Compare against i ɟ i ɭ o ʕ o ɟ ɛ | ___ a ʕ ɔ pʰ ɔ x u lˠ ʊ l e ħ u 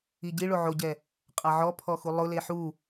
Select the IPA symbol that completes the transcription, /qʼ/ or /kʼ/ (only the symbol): qʼ